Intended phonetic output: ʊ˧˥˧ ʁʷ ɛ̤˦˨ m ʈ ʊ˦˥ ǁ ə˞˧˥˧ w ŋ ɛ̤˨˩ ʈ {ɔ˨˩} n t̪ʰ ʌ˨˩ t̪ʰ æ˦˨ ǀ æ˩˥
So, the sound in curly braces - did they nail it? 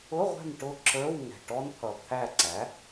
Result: no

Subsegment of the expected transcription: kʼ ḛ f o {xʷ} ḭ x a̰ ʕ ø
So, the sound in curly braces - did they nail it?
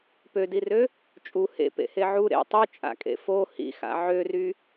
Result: no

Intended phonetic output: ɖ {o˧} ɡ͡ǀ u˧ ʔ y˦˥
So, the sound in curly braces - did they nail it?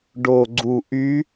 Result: yes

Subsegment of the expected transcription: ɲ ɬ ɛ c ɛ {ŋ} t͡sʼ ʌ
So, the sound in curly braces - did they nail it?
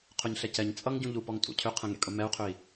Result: no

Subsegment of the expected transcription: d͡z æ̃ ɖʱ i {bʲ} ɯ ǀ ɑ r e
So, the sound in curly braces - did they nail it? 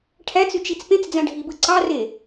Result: no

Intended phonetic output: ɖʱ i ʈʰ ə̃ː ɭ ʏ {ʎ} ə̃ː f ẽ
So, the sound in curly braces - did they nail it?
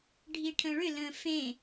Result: no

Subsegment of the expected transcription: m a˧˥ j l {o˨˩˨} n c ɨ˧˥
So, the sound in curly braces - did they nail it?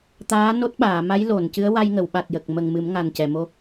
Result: yes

